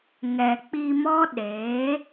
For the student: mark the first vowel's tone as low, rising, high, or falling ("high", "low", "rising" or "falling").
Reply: low